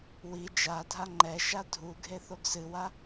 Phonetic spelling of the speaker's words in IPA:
w i d͡ʒ a dʱ a ŋ͡ǃ ɛ ʃ a dʱ u ɡʱ e θ o ɡ s ɨ w a

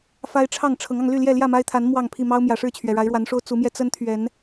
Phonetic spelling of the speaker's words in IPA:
f a˦ ɪ̯ ʈ͡ʂʰ ɑ˥˨ ŋ ʈ͡ʂʰ ɤ˨˦ ŋ ɑ˧ ŋ l y˥˨ l j ɛ˥˨ l j ä˥˨ m a˦ ɪ̯ t̪ʰ a˨˦ n m w ɑ˥˨ ŋ pʰ i˥˨ m ɑ˦ ʊ̯ m j ä˨˩ ʂ ɻ̩˥˨ t͡ɕʰ ɥ ɛ˩ ɻ a˨˦ ɪ̯ ɻ w a˨˦ n ʂ o˦ ʊ̯ t͡s u˨˦ m j ɛ˧ t͡s ə˦ n t̪ʰ ɥ ɛ˨˦ n

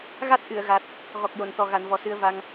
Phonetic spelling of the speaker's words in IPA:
ɣ a˦˥ t̚ ʔ ɨ˨˩˨ ə̯ ɣ a˨˩ t̚ | ɣ ɔ˨˩ k̚ j o˨˩˨ n t̪ ɔ˨˩ ɣ a˨˩˨ n v ɔ˨˩ s ɨ˧ ə̯ v a˧ ŋ

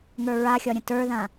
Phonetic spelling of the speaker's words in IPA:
ŋ ə˞ ɹ a xʲ ɒ ɾʲ ə̃ t ə˞ ð ã

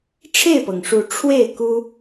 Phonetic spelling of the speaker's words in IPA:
ʈ͡ʂʰ e˥˨ ɪ̯ p ɤ˩ ŋ ʂ u˨˦ ʈ͡ʂʰ w e˥˨ ɪ̯ k u˦

